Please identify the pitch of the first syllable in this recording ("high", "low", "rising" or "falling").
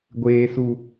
low